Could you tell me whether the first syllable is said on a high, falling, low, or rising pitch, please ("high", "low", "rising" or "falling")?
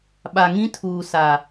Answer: low